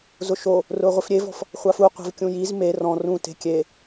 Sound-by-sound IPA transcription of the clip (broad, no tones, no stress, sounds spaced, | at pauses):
z ʊ ʃ o | r ʊː ʁʷ i f ɾʲ e v ɔ̤ f | χʷ a f u qʷ e̤ v kʲ ũ j i z m e r ɔ̃ r ũ t e̤ kʲ e